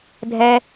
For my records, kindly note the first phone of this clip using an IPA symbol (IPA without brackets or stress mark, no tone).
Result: dʱ